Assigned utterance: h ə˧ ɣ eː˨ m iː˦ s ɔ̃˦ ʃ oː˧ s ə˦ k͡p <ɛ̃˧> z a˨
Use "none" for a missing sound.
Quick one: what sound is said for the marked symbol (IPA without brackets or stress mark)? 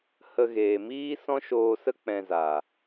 ɛ̃˧